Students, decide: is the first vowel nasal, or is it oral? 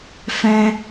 nasal